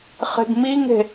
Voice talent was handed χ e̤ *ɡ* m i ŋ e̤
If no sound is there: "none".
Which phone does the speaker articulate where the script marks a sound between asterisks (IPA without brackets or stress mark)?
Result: ɡ